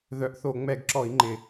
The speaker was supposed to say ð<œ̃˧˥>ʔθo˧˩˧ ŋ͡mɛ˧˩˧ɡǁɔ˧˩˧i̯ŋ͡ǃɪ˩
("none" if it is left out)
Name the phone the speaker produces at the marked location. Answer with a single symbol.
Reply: œ˧˥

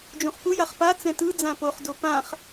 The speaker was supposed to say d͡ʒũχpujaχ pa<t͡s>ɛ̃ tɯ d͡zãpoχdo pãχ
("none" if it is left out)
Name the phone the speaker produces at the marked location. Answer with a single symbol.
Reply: t͡s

